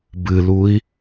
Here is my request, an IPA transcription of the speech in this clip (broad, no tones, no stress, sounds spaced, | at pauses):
b ɨ l u i̯